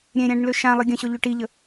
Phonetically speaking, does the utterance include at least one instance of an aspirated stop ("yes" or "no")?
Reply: no